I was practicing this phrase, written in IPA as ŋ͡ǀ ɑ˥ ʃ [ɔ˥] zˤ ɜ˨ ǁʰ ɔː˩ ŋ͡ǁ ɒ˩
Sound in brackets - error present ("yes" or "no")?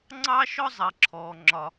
no